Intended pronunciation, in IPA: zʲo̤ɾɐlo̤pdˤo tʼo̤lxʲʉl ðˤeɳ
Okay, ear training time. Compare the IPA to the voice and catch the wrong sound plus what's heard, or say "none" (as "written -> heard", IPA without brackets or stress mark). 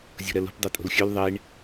none